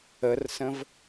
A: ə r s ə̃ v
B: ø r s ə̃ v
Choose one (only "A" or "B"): A